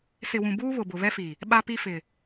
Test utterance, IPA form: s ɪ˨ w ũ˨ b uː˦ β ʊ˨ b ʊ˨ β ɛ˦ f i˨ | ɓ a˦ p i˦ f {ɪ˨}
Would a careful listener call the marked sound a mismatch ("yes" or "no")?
no